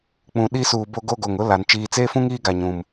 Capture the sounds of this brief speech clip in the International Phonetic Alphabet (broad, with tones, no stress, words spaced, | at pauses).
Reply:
k͡pũ˨ɗi˦suː˨ bo˦ɡo˦ɡo˨ŋ ʊ˦la˨n t͡ʃiː˨t͡seː˦fũ˦ŋ iː˦ɡa˨ɲũ˨m